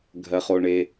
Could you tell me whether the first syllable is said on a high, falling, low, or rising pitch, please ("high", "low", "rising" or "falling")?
low